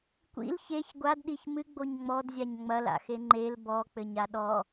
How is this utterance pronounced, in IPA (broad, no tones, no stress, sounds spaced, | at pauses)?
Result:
kʷ ḭ l ç e ç ɡʷ a d ɗ i ç m ɨ ɡ͡b o ɲ ŋ͡m ɔ d zʲ a ɲ ŋ͡m ɐ l a̰ x e ŋ͡ǃ e l b ɔ k͡p ɘ ɲ a ɗ ɔ